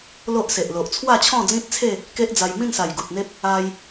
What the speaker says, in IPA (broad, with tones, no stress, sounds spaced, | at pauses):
l o˦ ʔ s e˨ ʔ l o˨ ʔ t͡sʰ w a˥˧ t͡ɕʰ ɔ̃˥˧ d͡z ĩ˦ t̚ t͡sʰ e˥˧ | k e˦ ʔ d͡z a˧ j m ĩ˥˧ n s a˨˩ j ɡ u˨ t̚ n̪ e˦ p̚ | a˦ j